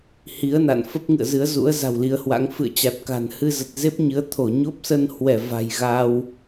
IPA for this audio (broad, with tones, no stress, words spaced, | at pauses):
hi˨˦ə̯na̰˧˨n fə˦˥p̚ŋɨ̰˧˨ə̯zɨ˨˦ə̯zṵ˧˥ə̯ za̤˨˩wli˨˦ə̯hwa̰˧˥ŋ fɨ̰˧˨ə̯t͡ɕa˨˩t̚ka̤˨˩n hɨ˧zə˨˩t̚ze˦˥p̚ɲɨ˨˦ə̯ t̪ʰo˧˩ɲo˦˥p̚sə˧nhwɛ˧˩ va̤˨˩jɣaː˧w